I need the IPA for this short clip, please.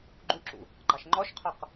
ɡ͡ǃuǁṵ | ɡ͡ǃɑʃŋ͡ǃɔʃqʰɔq

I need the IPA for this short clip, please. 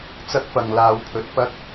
t͡sɐ˥k̚fɐ˨ŋ laː˨˧wpʰɵ˨t̚ pɐ˥k̚

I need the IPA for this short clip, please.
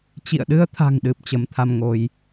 t͡ɕḭ˧˨ə̯ɗɨ˧ə̯t̪ʰa̤˨˩ŋɗɨ˨˩p̚ t͡ɕə˨˦mt̪ʰa˧mŋo˧j

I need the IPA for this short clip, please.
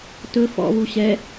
tɵ fɔ̰βu ɕɛ

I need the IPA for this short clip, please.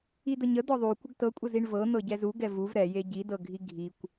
id̪əɲə d̪ɔðˤu kʷəɡtɤkʷʼəziɳ vɤ n̪ɤɟɛzu ɡɛvuv ɾɛje ɟidɤɡʱi ɡʱikʷ

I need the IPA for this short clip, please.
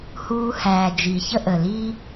huː˧hæː˨ d͡ʒi˨çə˦ʔə˨li˦

